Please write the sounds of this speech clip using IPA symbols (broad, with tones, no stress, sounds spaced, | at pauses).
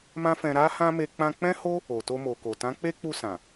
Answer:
m ã˦ f ɛ̃˧ ɾ a˦ h ã˦ m e˧ k͡p ã˧ k͡p ɛ̃˦ h o˦ | o˨ t o˧ m o˨ k o˨ t ã˨˦ k͡p e˦ k͡p u˧ s ã˨